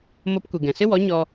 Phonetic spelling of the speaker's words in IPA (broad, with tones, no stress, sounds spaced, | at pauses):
m o˧ p kʷ i˨ ɡ ɛ̃˨ s ɨ˦ w ɔ˨˦ ɲ ɔ˧